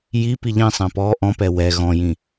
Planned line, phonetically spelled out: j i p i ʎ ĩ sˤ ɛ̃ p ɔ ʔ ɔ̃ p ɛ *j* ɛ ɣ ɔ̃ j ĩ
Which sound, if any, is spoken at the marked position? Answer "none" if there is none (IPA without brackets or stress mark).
w